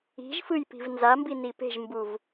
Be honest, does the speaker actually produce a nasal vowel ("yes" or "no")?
no